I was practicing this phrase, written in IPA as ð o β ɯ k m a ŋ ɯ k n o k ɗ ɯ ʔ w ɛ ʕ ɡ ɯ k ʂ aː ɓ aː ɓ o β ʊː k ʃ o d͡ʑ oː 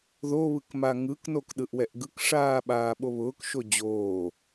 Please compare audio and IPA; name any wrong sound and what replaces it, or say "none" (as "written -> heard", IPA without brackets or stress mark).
ʕ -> ʔ